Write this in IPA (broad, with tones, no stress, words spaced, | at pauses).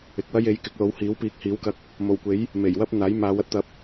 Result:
ɪ˨k̚wɐ˥j e˨˥j kɪ˨˥k̚lo˨˥whiː˨˥wpiː˨˥k̚ hiː˨˥wkɐ˧k̚ | mo˨˩wkʷe˨˥j | me˨˩jwɐ˥p̚ n̪aː˨˥jmaː˨˧wɐ˥t̚ t̪ɐ˨˥p̚